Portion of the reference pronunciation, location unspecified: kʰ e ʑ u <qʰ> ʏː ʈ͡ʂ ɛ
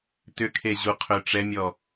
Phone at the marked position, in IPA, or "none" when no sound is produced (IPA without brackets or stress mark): qʰ